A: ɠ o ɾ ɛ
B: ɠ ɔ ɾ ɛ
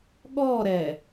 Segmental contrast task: B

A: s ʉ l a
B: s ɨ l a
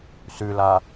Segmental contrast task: A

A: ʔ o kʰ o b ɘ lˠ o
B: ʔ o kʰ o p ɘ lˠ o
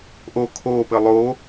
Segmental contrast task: B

